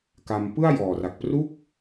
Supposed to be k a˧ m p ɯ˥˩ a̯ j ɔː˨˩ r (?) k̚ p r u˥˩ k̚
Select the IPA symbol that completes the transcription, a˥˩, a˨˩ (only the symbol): a˨˩